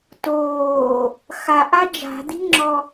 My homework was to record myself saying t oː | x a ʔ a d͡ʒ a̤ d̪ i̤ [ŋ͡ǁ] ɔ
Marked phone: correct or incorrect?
correct